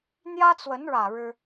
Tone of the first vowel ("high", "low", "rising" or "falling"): high